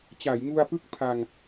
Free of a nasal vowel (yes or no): yes